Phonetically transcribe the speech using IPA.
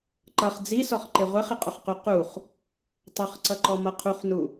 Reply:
ǃ ʌ χ d͡z i s ɔ χ ǃ ɪ ʁʷ ɛ χ ɪ qʼ ʊ χ q u q u χ | tˤ ʌ χ ǀ ʌ ǃ ɔ m ʌ qʰ u χ n u

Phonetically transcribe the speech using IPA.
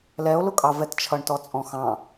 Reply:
l ɛ o̯ l ʊ kʼ ɑ v ɛ t t͡ʃʰ ʌ ɳ t ɔ t͡sʼ ɔ̃ x ɑ̃

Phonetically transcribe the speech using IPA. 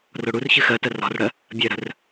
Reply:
r o ɽ u r ç ɨ x ɜ t ɜ r ɔ̤ r ɽ ɜ | bʲ ɜ ɾ ə̤ r

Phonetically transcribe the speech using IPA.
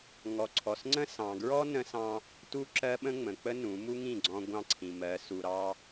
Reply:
ŋ ɔ˨ ǀʰ ɔ˨ s ŋ͡ǀ ə̃˦ s ɑ̃˨ ɡ ɹ ɔ˦ n ə̃˦ s ɑ̃˦ | t u˦ ǁ ɜ˦ ɓ ə̃˦ ŋ͡m ə̃˨ k͡p ə˦ n ũ˨˦ m u˦ ŋ ĩ˦˨ ɡ͡ǀ ɔ̃˦ ɡʷ ɑ̃˦ ǀʰ ĩ˨ m ɜ˨˦ s u˨ ɾ ɑ˦

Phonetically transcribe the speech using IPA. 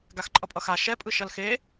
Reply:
ɡ a x ǃʼ ʌ pʼ ʌ x a ʃ ɛ pʼ ɯ ʃ ʌ l x e

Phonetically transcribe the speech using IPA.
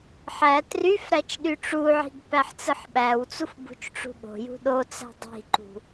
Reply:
ħ æ t r y f ɾ æ t͡ʃ ɗ y ʈ͡ʂ u ʕ i̤ ɡ p æ ħ t͡s ɯ ħ ɓ æ w t͡s u f b ṳ t͡ʃ ʈ͡ʂ ṳ ɠ o̤ j ṳ ɗ o t͡s æ̤ dˤ i̤ ǃ ṳ

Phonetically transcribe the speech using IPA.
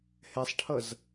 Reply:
h ɛ sˤ ʈʰ ʌ z

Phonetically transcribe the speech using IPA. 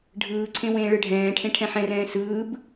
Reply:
ɖʱ ɯː ǀʰ ẽ w ẽː ɭ ɯ ɖʱ ɛ̃ː ʈʰ ẽ ʈʰ ɛ̃ ħ ɛ̃ r ɛ̃ː s ɯː b

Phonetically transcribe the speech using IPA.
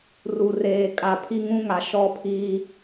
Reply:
r u˨ r eː˨ kʼ a˨ pʰ i˦ ŋ ũ˦ ŋ a˨ ʃ ɔ˦ pʰ iː˦

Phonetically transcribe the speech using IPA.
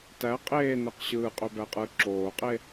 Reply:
t æ qʼ eː n̪ e q ɕ ɯː qʼ ø b æ qʼ ɯː ǁ oː qʼ e

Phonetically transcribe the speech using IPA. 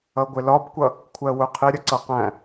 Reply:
ʌ ɡʷ ɪ l ɒ b kʷ ʌ | kʷʰ ɜ w ʊ qʰ ɪ ɾʲ ə ǀ ʌ q æ̃

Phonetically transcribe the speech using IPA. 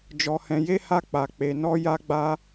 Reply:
d͡ʒ ɔ˧ h ɛ̃˧ j e˦ h a˦ k͡p a˧ k͡p e˧ n ɔ˦ j a˦ ɡ͡b a˦

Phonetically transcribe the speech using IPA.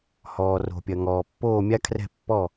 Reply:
h ɔː˩ r o̤˩ pʲ ɐ˩ ŋ ɔː˩ pː oː˥˩ mʲ a˥ kʰ r ɛ̤˥˩ pː ɔ˥˩

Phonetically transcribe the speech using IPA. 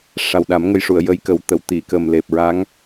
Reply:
ʂ a˨˩ w ɗ a˨˩˦ m ŋ ə˧ j ʂ u˨˩˨ ə̯ j ə˧˥ j k ə˨˩˦ w t̪ ə˨˩˨ w t̪ i˨˩˨ k ə˨˩ m l e˨˩ p̚ ɹ a˧˥ ŋ

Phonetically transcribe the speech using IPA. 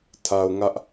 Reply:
tʰ a˨ ʊ̯ ŋ ä˦ ʔ

